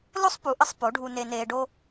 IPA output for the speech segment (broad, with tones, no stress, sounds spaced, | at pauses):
l o˥ sˤ p u˩˥ ʔ ə˧ sˤ p o˩˥ ɖʱ u˧ n e˧ n eː˧ ɖ o˥